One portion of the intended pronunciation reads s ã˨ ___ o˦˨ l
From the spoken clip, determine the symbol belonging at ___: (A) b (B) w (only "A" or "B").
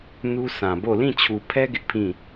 A